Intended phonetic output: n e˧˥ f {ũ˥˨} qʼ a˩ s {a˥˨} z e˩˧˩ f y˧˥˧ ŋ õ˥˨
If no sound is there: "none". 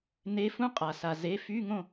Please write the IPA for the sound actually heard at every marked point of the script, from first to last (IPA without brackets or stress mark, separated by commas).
ũ˥, a˩